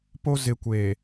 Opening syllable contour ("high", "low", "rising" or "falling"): high